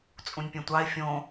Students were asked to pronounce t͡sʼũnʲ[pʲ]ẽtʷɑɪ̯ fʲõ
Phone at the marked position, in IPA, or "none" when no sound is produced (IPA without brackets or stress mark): pʲ